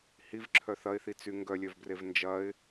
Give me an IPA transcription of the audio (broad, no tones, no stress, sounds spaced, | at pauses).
h i v ǁʰ œ θ ɐ ɪ̯ θ i t͡s y ŋ ɡ œ lʲ œ v b r e v n d͡ʒ ɐ ɪ̯